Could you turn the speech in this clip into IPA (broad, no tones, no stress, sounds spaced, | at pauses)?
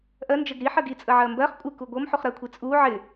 ʔ ɜ n d͡ʒ ə ɡ ɾ i ħ ɜ ɡ i t͡sʼ ə ʕ ɜ m b ɜ χ kʷʼ ɪ k u ɡʷ ɤ m ħ u χ ɾ ɜ kʷʰ i t͡sʼ u ʕ ɪ